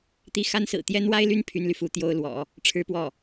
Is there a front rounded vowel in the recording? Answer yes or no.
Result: yes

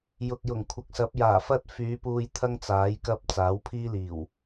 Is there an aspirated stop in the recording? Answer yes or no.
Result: yes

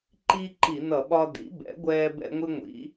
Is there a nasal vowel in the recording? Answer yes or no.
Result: no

